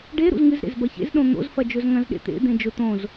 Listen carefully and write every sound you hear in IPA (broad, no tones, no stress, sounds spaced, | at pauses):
ɖ e ɾ ṵ z ŋ ɨ z ɾ ḛ z b ɐ ç ḛ z ɗ õ n̪ o̰ z f ɐ d͡ʒ ɵ z ŋ ɐ̃ z ɗ ḛ t̪ ḛ d̪ ẽ d͡ʒ ɵ t̪ õ z